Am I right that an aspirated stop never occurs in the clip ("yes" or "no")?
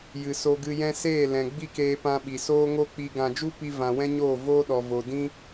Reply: yes